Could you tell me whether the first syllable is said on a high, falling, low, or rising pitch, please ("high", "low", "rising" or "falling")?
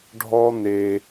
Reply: high